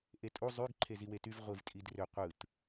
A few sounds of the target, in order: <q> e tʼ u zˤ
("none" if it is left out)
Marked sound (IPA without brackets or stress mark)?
ʔ